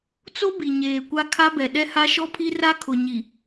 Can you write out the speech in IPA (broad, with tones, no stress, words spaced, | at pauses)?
t͡so˦ bi˨ɲeː˨kʷa˦ kʰa˦bɛ˨ ɗɛ˦ha˦ ʃɔ˦pʰi˦ ra˦kʰʊ˨ɲi˨